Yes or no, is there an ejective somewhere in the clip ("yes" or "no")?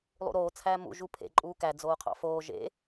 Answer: yes